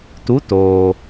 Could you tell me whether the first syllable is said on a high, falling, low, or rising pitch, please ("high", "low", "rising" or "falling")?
rising